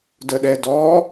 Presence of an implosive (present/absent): present